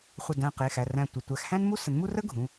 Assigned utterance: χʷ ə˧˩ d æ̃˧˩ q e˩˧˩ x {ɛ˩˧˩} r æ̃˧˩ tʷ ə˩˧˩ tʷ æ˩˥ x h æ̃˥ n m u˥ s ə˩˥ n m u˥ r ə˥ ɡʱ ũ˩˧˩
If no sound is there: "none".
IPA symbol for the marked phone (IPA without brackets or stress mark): æ˩˧˩